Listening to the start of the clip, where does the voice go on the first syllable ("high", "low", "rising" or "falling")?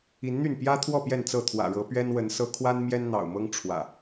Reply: rising